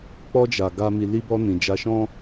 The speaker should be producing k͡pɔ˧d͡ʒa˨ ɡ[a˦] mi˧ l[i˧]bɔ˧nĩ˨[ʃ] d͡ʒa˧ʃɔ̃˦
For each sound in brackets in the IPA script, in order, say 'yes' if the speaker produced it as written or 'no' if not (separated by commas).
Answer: no, yes, no